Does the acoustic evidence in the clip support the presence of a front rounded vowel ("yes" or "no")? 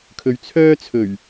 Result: yes